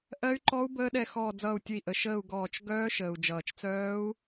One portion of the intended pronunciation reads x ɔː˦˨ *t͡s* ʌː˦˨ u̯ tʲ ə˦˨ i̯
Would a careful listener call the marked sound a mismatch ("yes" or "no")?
yes